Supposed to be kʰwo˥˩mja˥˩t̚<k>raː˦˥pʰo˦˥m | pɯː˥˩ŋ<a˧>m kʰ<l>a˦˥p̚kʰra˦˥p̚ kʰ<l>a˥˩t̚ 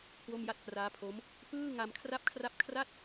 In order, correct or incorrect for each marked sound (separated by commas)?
correct, correct, incorrect, incorrect